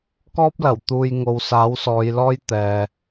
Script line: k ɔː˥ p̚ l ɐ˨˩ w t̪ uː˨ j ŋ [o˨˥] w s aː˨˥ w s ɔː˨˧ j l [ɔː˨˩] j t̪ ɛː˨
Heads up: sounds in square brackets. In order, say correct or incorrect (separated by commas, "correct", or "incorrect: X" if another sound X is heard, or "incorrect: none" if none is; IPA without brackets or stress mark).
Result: incorrect: o˨, incorrect: ɔː˥